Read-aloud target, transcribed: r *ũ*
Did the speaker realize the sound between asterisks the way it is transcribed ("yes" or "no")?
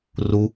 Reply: no